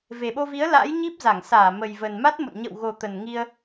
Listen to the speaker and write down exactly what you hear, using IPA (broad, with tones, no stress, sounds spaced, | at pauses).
v e˨˩ ɓ o˧ v i˨˦ ə̯ l a̰˧˥ j ɲ i˦˥ p̚ z a˧˩ ŋ s aː˧˩ m ə˨˩ j v ə˨˩ n m a˦˥ t̚ m o̰˧˨ n ɲ ə̰˧˨ w ɣ o˨˩ t̪ ə˨˩ n ŋ i˧ ə̯